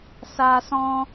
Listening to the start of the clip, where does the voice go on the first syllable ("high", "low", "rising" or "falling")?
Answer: high